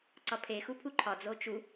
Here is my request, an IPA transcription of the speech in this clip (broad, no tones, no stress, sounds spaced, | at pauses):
ǀ ɒ pʰ e x u pʰ u ǃʰ ɒ d͡z o t͡ʃ u